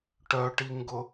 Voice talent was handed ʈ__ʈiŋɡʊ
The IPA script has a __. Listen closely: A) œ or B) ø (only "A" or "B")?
A